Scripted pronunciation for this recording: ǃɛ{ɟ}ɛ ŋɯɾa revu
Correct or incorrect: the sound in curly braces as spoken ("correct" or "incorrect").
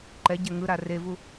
correct